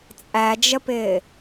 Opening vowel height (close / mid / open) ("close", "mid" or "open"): open